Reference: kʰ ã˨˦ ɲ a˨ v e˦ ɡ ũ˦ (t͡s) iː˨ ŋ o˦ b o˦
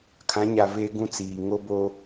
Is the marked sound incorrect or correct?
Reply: correct